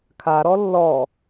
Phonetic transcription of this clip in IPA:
kʰaɾɔ lːɔ

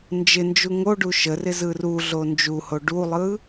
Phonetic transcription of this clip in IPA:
nd͡ʒɪnd͡ʒu ŋoɖu ʃərɪ zɯruɮo nd͡ʒuho ɖulˠɯ

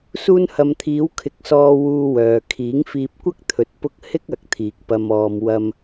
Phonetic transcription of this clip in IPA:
suː˧nhɐ˨mt̪ʰiː˨˧w kʰɪ˧k̚sɔː˧ wuː˧wœː˨ kʰiː˨˥ŋfiː˧p̚kʷɐ˥k̚t̪ʰɵ˨t̚ pʊ˧k̚ hɪ˥k̚ɐ˨˥k̚ t̪ʰiː˨k̚ pɐ˨mɔː˨m wɐ˧m

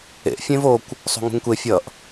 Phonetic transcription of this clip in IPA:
ḛʔ fʲẽvokʷ | sˤṳŋṳŋkʷe fʲʌʔ

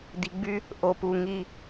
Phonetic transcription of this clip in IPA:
d̪i˨ɡ͡by˦ | ʔo˨pu˨ ŋi˦

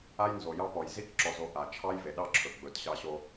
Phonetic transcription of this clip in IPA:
a˦jnzo˨jɑ˦pɔ˨j zi˦kǁɔ˨zo˨ ʔa˨t͡ʃʰɑ˦jve˨ɗɑ˦ ǁʰɵ˨ɡ͡bɵ˨˦tɕɑ˦ɕo˦

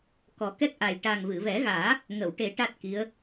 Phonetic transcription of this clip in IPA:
kɔ˨˩˦kɛ˦˥k̚ʔa˨˩j ʈa˨˩ŋvɨ˨˩˨vɛ˨˩˦ɣaː˨˩˦ | ŋə˨˩˨wʈe˨˩˦ ʈa˦˥t̚ki˧˥ə̯

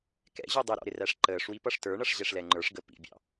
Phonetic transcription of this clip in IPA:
kɛ̰ʑu dˤɪɾɔ̰ ɾɪræʂǃəːʂwi pʌʂtə˞ɳʌʂ ʑɛʂlɛŋ͡ǃə˞ʂɡə pḭbʲɑ̰

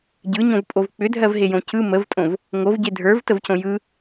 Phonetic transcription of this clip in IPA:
ɟɯɲõvpʼov k͡pʏdʱɜvɦejõ cɯ məvtʼõv | ŋovɟe dʱə˞vtəvcõ jɯ

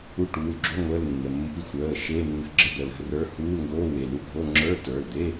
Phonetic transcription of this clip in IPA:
u˧˥˧ʈuː˩˧˩lɡ͡ǁo˧˥˧ ŋʷəː˧˥˧lnːə˩˧˩mːṳ˧˥˧l xʷəː˩˧˩ ʃeː˧˥˧nːə̤˧˥˧ ɡ͡ǁə˧˥˧d̪ə˩˧˩ lə̤˧˥˧rə˞˧˥˧ huː˧˥˧lŋɡoː˧˥˧we˩˧˩ lu˧˥˧ɡʱo˧˥˧ ŋ͡ǁə˞˧˥˧tə˞˩˧˩ld̪e˧˥˧

